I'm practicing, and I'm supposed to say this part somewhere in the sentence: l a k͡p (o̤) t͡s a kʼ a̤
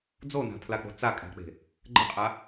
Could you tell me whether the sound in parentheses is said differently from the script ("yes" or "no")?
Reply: no